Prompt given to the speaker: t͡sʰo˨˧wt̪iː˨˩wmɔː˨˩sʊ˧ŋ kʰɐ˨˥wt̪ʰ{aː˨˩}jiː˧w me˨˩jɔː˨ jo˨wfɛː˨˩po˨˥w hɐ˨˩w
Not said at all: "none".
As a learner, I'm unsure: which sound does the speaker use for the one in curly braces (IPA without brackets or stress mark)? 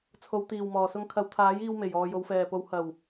aː˨˥